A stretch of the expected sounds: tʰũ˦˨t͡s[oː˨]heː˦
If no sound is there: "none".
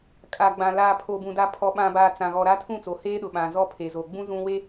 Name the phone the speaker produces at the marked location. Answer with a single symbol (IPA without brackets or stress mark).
o˨